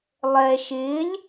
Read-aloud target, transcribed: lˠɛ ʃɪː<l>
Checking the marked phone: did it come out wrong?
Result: yes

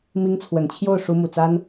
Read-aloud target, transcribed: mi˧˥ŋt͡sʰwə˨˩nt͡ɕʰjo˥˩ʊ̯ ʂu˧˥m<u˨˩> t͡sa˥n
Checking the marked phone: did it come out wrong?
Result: no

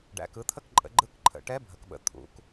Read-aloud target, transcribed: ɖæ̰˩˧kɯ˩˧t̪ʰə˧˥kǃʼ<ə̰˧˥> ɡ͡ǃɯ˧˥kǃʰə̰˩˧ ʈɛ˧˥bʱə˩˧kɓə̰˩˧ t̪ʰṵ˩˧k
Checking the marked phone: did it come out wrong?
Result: yes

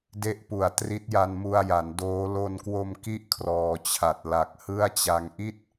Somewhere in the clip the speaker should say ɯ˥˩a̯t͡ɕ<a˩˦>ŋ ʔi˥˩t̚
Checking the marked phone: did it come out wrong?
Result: yes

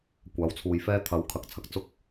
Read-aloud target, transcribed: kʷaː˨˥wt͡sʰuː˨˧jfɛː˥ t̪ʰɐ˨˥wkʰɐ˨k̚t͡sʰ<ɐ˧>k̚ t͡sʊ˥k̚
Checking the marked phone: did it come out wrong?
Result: no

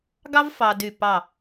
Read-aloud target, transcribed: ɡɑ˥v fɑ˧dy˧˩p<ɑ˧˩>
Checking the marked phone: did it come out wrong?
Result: no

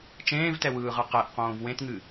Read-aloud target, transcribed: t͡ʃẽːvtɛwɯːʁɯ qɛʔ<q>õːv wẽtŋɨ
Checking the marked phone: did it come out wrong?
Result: no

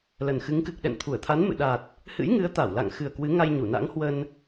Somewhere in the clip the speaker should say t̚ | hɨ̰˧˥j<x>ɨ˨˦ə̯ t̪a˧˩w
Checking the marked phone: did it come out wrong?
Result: yes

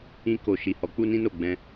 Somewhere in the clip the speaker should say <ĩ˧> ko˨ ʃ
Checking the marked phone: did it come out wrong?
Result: no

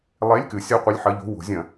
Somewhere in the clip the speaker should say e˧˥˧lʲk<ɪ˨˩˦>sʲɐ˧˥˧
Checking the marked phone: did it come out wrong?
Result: yes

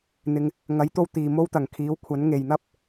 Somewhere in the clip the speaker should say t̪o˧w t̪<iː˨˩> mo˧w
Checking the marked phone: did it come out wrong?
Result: yes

